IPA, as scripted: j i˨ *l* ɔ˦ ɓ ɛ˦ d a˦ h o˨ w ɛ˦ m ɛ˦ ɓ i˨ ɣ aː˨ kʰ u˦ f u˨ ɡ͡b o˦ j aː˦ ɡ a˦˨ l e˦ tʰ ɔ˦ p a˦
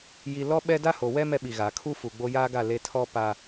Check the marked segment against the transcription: correct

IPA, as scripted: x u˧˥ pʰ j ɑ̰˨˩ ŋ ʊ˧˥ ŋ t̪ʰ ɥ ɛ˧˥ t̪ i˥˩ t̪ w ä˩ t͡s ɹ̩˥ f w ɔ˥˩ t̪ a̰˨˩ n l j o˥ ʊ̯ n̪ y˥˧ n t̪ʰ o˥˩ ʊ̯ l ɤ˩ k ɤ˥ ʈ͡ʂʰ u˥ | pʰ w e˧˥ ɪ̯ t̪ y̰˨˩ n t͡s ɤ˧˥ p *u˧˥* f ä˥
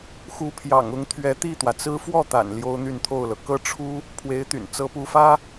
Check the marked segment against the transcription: correct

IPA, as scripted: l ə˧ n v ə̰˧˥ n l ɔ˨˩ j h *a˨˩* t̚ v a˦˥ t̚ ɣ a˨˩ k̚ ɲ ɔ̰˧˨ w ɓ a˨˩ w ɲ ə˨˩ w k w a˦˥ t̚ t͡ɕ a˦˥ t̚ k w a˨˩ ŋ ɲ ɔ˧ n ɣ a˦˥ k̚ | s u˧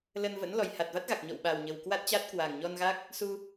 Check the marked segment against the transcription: correct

